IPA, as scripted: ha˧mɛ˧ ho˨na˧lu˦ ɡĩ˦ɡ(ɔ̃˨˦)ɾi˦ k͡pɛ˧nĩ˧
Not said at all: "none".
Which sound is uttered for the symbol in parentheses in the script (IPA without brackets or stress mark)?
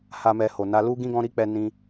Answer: ɔ̃˦